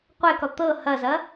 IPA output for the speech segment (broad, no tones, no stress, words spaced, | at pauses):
qʷɛkɔ t̪ɤ hɐzɐ